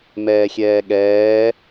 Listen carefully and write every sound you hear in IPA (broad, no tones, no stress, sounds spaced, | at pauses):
m ɛː xʲ ɛː ɠ ɛː